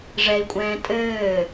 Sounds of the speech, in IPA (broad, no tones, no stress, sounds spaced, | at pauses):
ʐ ɛ i̯ kʷʼ ɛ̃ː tʼ ɘː